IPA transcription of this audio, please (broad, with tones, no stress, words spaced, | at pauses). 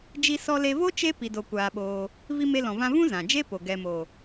d͡ʒi˧sɔ˧le˧vo˦ t͡ʃe˦ pi˧do˧kʷaː˧ɓoː˧ | vi˧me˧lɔ̃˨vã˧ vũ˦zã˨d͡ʒe˦po˨ ɡɛ˨mo˨